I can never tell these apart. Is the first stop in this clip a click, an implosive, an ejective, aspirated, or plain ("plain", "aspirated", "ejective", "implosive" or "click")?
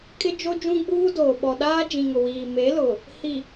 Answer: ejective